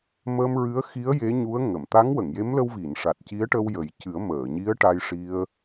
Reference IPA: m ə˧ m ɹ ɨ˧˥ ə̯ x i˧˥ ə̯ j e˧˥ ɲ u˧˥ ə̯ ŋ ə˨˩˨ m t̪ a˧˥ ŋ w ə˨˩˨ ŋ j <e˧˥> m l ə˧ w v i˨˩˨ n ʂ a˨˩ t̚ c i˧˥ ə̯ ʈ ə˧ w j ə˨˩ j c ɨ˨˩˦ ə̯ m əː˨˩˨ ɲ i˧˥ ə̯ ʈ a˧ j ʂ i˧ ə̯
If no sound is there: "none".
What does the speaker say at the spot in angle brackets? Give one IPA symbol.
e˧˥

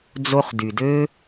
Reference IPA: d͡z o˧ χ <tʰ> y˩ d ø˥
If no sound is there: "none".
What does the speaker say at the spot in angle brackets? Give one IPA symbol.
d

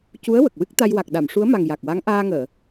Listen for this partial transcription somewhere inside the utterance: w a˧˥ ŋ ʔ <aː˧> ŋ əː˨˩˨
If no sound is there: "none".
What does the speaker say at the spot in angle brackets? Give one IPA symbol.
aː˧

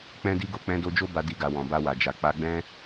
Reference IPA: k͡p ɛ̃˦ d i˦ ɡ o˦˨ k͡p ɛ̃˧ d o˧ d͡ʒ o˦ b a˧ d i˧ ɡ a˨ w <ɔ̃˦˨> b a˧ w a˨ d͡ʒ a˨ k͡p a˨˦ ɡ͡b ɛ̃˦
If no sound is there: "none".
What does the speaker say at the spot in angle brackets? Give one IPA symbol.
ɔ̃˨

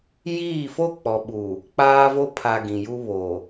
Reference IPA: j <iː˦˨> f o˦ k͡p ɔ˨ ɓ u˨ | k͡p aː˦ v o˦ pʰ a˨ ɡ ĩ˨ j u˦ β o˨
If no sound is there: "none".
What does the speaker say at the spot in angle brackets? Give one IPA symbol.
iː˦˨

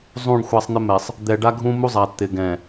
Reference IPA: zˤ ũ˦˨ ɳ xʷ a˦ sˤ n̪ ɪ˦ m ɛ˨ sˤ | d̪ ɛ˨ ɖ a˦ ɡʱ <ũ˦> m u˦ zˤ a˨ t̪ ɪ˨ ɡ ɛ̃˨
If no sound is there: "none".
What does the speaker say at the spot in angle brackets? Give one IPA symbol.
ũ˦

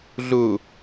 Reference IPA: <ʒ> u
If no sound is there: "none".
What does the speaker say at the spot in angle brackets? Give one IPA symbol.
ɮ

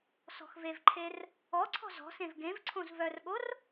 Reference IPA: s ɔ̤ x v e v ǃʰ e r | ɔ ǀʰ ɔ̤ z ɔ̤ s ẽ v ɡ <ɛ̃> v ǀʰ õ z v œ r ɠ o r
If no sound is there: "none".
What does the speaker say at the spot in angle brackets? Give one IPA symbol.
ẽ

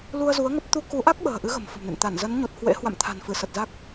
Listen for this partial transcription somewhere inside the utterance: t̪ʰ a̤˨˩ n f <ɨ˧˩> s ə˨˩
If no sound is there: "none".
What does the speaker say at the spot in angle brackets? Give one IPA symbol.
ɨ˧˩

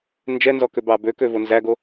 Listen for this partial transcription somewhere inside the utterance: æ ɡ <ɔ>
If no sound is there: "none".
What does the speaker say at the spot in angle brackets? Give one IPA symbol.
o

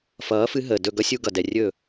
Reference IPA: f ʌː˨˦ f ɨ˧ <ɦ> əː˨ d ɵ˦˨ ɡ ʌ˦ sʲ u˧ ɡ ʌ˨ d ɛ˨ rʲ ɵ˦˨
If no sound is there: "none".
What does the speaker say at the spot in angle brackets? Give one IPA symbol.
ɦ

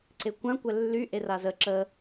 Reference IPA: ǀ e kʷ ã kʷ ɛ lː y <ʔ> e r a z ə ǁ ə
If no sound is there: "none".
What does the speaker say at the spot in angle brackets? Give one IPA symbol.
ʔ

